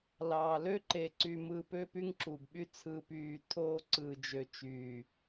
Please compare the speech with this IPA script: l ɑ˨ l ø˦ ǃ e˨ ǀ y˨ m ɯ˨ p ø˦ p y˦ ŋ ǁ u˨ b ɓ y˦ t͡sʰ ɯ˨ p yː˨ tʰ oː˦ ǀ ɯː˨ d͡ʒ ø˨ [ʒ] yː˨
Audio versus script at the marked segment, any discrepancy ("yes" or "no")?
yes